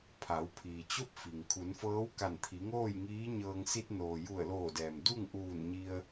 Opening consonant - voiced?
no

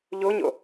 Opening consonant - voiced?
yes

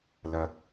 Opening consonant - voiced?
yes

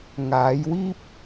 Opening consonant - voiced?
yes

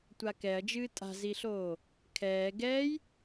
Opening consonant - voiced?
no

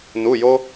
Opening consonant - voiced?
yes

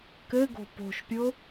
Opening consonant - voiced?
no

